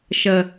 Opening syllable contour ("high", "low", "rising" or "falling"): low